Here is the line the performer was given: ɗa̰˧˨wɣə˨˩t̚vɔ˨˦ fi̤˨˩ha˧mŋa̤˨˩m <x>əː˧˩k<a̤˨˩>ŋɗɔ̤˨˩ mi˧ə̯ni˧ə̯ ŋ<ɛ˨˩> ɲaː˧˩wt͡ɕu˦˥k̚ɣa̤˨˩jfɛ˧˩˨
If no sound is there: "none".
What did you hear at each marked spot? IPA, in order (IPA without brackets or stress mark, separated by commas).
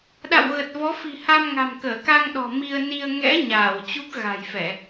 k, a˧, ɛ̰˧˥